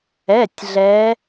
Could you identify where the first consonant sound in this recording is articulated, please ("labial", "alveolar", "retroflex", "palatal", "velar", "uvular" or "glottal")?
alveolar